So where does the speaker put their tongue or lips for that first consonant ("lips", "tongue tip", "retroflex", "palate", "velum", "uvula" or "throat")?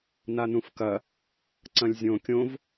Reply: tongue tip